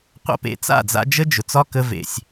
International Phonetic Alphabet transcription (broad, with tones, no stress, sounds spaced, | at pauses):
qʷ a̰˦ p ḛ˨ t͡s a̰˦˨ d͡z a̰˧ d͡ʒ ə˦ d͡ʒ ʊ˨ t͡s ɒ˦ k ə˧ v ḛ˨ sʲ